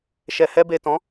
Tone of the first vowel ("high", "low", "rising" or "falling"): low